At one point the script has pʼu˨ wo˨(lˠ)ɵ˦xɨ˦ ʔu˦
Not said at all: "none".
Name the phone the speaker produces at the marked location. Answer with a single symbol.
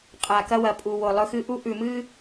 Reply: lˠ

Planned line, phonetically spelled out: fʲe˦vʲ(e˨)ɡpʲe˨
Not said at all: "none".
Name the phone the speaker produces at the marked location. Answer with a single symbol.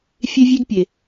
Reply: e˦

